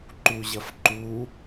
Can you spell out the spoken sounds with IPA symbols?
ǃuʑɐfǃu

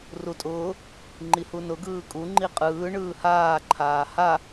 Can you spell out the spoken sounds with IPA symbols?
rutʼʊː | ŋ͡ǃihunʊ ɡɯːkʼu ŋ͡ǃiqʼɯː ɳɯːhaː ǃʰaːha

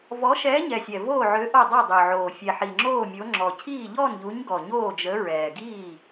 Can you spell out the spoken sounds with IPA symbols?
vɔ˨˥ʃɛː˨˥ɲɛ˨˩sʲɛ˨˩ voː˥˩ʕø˨˥ ʔo˥˩dˤɛ˥˩dˤø˨˩ʕoː˨˩ fʲɛ˨˩ħi˨˩ŋ͡ǁoː˥˩mʲo˨˥ ŋ͡ǁɔ˨˩cʰiː˥˩ ʎɔ˥˩nʎu˨˥ɲɡɔ˨˩ ɲoː˥˩d͡ʒə˨˥ɹɛː˨˩ɡiː˥˩

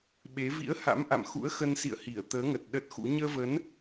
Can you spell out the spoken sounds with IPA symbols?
ɓe˨˦ vḭ˧˥ə̯ha̰˧˥m ʔa̰˧˨mxṵ˧˥ə̯xə˧nsḭ˧˨ə̯ hi˧˩ə̯t̪əː˨˦ŋə˨˩t̚ ɗə˦˥t̚xṵ˧˥ ɲəː˧və˨˦n

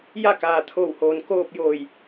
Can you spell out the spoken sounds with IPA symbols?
ja˥˨kaː˩t̪ʰoː˧˩whoː˩n koː˥˨p̚joː˧˩j

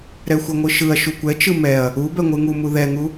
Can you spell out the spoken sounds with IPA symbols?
ɾɛxʷɛŋʷɯʃɯɐ̯ ʃukʷɛt͡ʃɯ mɛɐ̯ | u bɛŋʷɯŋumu ðɛŋu

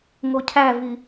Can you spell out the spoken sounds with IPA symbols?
ŋocʰævi

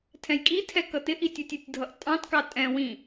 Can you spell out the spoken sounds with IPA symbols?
tʰɛ̃jkʼitʰɛ kʌtɪʔi tʲʌtʲʌtʲdʱʌʔ tʼɑ̃tkɑ tʼɛ̃ wĩ

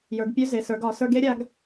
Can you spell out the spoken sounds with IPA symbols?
jə˞˩˧ɡpʲø˧˥ze˩˧ sə˞˩˧ɡ ɒ˩˧ sə˞˧ɡe˧˥ɾʲa˧ɡ

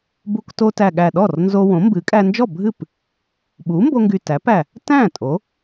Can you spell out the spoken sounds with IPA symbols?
bu˧kto˧tæ˨˩ ɠæ˨˩ ɗɔ˥˩rnzo˧wõ˩˥ mbɨ˩˥kʼæ˧nd͡ʒɔ˥˩bʱɨ˥˩p | ɓu˩˥mbo˧ŋɡy˨˩ tæ˩˥pæ˨˩ | tæ̃˥˩ tʼo˩˥

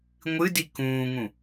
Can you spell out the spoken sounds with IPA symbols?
ŋʷɨdi kũːŋũ

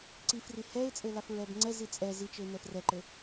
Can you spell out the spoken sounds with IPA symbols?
ǀifri hɛɪ̯t͡sʼɘ lafɹɛbŋ͡ǀɛzi t͡sʼɛ zit͡ʃɘɪ̯ nɛfrɛǃɘ

